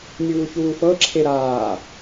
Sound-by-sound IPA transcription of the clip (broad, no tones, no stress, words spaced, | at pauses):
nʲuːçuːfɤǁʰe ɾaː